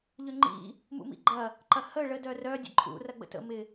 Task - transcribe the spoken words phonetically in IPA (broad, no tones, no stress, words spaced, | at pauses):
ʎʏŋ͡ǃḭ | mṵmḭɡ͡ǃɐ | ǃɐhə ɭə dœrœ dʲə̰ǃʼṵ rɐɡ͡bə̰tə̰ mɪ